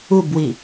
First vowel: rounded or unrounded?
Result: rounded